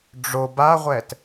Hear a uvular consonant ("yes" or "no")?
yes